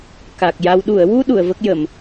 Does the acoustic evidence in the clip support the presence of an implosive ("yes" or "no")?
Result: yes